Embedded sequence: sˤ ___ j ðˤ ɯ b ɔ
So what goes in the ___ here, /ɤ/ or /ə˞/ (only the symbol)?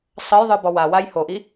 ɤ